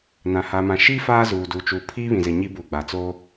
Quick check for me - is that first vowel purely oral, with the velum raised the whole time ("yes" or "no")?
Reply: no